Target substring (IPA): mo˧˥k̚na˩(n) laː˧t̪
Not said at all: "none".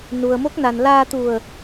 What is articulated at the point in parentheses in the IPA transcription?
n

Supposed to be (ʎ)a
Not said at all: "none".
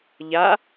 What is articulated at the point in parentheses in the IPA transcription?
ʎ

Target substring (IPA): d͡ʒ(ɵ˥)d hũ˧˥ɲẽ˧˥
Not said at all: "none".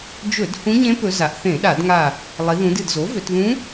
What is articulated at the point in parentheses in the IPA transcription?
ɵ˧˩˧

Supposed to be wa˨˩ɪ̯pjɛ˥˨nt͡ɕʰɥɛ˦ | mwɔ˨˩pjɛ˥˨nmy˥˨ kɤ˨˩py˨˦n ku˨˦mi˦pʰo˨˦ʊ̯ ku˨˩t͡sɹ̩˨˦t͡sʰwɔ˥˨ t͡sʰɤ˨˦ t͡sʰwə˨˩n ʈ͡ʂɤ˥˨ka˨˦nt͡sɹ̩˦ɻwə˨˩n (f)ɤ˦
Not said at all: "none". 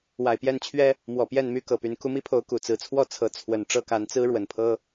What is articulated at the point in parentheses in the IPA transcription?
pʰ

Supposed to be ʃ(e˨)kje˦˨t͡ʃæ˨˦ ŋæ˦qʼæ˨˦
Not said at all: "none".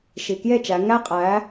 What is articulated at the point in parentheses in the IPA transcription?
i˨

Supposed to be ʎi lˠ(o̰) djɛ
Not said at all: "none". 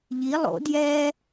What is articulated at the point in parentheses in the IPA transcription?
o̰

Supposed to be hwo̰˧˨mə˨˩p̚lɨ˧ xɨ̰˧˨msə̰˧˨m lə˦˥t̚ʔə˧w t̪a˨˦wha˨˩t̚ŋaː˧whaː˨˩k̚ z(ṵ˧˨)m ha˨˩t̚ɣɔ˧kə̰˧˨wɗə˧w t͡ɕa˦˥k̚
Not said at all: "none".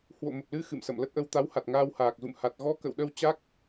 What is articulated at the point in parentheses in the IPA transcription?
ṵ˧˨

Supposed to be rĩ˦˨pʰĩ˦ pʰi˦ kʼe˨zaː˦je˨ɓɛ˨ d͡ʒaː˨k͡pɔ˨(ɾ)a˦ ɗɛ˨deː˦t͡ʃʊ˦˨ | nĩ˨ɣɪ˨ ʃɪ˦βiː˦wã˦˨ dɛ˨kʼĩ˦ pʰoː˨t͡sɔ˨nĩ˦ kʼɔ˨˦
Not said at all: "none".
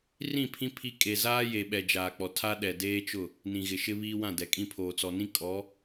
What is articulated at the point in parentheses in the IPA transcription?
tʰ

